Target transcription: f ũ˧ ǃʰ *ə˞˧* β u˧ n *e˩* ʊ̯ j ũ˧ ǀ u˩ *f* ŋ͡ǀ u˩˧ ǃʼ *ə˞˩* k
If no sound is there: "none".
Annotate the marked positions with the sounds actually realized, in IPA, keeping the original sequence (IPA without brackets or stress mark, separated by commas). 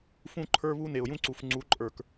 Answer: ə˞˧, e˩, f, ə˞˩